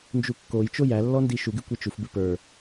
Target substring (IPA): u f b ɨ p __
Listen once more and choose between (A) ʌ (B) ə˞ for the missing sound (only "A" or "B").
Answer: B